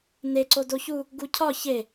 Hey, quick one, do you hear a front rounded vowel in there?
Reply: no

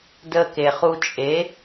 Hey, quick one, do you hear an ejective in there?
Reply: yes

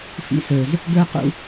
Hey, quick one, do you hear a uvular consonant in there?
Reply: yes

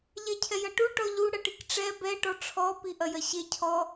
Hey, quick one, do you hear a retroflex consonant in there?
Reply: yes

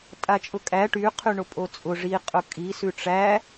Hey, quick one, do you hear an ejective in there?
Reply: yes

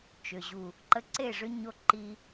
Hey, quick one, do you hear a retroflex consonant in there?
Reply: yes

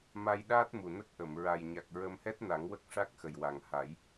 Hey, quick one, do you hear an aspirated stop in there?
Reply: no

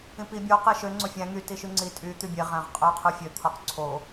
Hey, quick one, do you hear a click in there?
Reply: yes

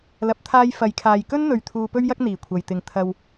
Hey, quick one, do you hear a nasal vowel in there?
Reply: no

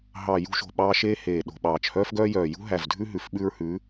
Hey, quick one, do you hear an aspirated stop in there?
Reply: no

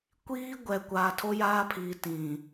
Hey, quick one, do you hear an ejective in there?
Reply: no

